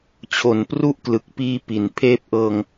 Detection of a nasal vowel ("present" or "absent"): absent